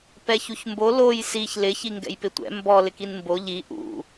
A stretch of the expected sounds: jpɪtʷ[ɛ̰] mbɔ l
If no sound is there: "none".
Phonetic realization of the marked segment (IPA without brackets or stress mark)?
ɛ̰